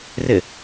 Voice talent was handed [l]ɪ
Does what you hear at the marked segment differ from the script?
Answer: yes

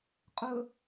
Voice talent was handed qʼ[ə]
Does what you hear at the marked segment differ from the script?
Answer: yes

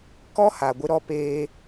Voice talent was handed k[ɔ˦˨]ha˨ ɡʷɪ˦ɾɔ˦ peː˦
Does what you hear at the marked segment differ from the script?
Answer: yes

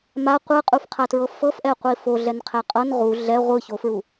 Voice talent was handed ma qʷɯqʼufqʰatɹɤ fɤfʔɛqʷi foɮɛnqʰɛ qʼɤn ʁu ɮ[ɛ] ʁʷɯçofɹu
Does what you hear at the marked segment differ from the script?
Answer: no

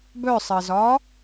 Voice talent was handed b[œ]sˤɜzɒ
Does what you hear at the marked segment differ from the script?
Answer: no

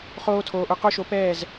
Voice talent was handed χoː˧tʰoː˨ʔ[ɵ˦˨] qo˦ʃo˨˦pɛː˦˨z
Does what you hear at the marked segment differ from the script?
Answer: no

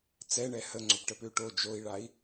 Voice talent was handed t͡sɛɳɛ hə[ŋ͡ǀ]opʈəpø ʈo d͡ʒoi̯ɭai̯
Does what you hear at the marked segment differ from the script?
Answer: no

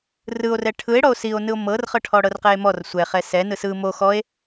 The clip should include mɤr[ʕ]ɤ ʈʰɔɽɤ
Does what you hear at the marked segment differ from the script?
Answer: yes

